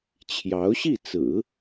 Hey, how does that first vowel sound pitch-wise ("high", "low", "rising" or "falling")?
rising